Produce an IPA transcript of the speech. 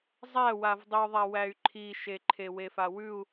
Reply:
zˤ æ w a v dˤ i u̯ ðˤ a w æ y̯ ǃʰ i ʃ e ǃʰ e w e f a w ʉ u̯

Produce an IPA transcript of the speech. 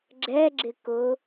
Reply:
ɡ͡ǁ ɛ ɡ͡ǁ ɪ k ʊ

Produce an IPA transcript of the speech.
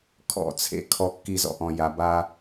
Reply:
kʰ ɔ̰˦˨ t͡sʰ ḛ˦ kʰ ɔ˧ kː i˧ z ɔ̰˧ ʔ ɔ̃˨ j a˨ b a˧

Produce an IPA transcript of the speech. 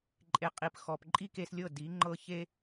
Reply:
ǃʼ e˩˥ qʼ i˩ p x ɔ˩ p ǃʼ i˥ k e˧ s lʲ ɤ˥˩ d i˩˥ ŋ͡ǃ ɤ˧ ç e˥

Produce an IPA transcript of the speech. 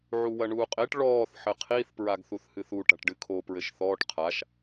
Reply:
ʕ u w ɐ ɳ uː qʼ e ʈ ɭ ɔː θ ħ ɘ qʰ i θ p ɹ a ɡ θ u θ h ɨ θ u ʈ a̤ ʈ ɖ ɨ kʰ o p ɹ ɘ ʃ θ ɔː ʈ qʰ a ʃ

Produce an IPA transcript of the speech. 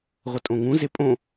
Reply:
ʁʷ ə tʼ õ ŋ ũ z e pʼ õ

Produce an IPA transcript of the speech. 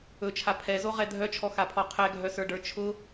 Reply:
ɵ t͡ʃʰ a pʰ ɛ z o ʁ ɛ dʱ œ t͡ʃʰ ɔ x a pʰ ɔ qʰ ɛ ɡʱ œ s ə˞ ɖ ə˞ t͡ʃʰ ʊ

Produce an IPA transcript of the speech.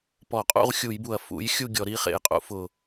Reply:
p ɔ˧˩˧ qʼ ṵ˥˨ ʁ xʲ u˧˩˧ j b u˨˩ ɐ̯ f ṵ˨˥ j xʲ u˥˨ ɡʲ ɔ˧˩˧ ɾ i˨˥ χ ḛ˧˩˧ j qʼ ṵ˨˥ f ʊ˨˩

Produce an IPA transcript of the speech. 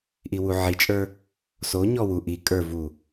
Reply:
ʔ i w u ʕ i t͡ʃʼ ə˞ | s o ɲ ɔ w u ʔ i kʼ ə˞ v u

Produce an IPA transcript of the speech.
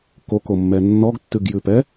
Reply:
k o k o mː ɛ nː ɔ ɡ tː ʉ ɡ j ʉ p ɛ

